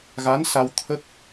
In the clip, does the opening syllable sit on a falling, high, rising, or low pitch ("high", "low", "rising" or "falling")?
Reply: rising